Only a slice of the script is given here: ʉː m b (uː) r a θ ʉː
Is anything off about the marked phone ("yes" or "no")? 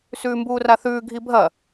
no